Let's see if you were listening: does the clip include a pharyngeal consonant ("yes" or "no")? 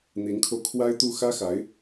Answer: no